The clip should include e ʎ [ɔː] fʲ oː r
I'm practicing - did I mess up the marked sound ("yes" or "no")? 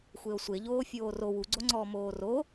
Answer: yes